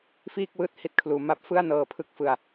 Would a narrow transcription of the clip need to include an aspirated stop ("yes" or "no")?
yes